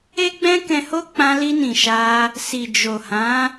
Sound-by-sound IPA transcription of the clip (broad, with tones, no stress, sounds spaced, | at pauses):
e˦ ɡ͡b ɛ̃˦ k ɛ̃˧ h o˦ k͡p ã˧ l i˧ n ĩ˨ ʃ a˧ | s i˨ d͡ʒ o˨ h ã˨˦